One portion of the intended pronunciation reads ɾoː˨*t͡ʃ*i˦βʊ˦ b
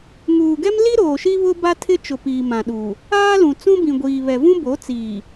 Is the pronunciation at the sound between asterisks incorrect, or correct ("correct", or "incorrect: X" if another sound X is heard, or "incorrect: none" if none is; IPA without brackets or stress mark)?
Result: incorrect: ʃ